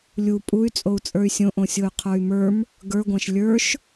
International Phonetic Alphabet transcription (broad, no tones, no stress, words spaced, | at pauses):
lʲu pʼuy̯ t͡sʼou̯t͡sʼə˞y̯sʲõʔõ sʲoy̯qʰə˞y̯mə˞m | ɡə˞ɡʷæ̃ʃ lʲə˞ʃ